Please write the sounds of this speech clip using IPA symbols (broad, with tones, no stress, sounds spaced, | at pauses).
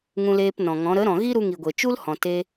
ŋ ũ˧ l eː˧ p n ɔ̃˨ ŋ ɔ̃˨˦ ɾ ə˨˦ ɾ ɔ̃˨ ɣ i˦ ɾ u˧ ŋ i˨ ɡʷ e˨ t͡ʃ u˦ l h ɔ̃˨ t e˧